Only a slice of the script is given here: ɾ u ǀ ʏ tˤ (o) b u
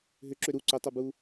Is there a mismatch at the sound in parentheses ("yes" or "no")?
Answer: no